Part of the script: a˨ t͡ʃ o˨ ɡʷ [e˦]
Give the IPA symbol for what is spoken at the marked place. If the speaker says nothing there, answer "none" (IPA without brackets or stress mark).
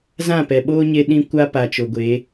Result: e˨˦